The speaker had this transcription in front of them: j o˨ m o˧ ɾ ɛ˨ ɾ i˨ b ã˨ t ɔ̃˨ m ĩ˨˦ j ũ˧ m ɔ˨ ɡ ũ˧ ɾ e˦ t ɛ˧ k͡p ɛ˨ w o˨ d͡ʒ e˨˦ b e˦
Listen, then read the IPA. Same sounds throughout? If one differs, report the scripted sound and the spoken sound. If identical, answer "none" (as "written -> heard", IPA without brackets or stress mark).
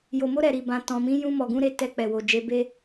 none